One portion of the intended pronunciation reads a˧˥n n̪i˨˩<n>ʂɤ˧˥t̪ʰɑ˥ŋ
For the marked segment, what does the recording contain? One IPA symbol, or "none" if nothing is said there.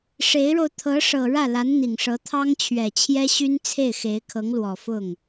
ŋ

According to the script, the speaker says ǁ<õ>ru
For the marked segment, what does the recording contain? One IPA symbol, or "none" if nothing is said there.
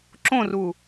õ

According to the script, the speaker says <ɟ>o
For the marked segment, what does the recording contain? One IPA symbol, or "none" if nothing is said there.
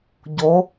ɟ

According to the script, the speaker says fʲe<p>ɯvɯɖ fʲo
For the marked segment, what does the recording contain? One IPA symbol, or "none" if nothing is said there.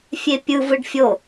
pʲ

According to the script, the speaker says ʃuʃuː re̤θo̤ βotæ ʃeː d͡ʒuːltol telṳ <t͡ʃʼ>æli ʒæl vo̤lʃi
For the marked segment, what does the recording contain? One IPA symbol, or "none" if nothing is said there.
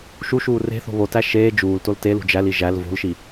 d͡ʒ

